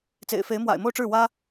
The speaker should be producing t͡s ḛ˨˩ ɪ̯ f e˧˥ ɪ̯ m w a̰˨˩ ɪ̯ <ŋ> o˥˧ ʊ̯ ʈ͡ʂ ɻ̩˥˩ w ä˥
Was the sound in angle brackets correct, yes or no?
no